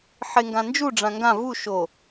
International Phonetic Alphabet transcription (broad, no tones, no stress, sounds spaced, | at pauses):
ħ e ŋ ɡ ã n d͡ʒ u ɖ͡ʐ ã ŋ ɡ ã v u ʃ o